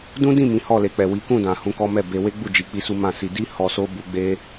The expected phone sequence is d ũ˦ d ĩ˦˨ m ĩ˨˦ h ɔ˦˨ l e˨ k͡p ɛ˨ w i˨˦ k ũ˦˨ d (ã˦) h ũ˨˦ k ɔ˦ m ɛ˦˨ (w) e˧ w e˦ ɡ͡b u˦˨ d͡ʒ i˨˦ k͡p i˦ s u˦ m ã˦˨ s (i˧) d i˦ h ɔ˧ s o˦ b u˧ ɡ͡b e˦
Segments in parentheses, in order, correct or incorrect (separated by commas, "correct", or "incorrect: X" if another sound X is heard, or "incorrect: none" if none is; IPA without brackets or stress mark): incorrect: ã˨, incorrect: b, correct